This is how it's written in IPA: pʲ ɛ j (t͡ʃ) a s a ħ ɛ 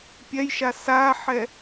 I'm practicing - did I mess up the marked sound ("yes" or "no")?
yes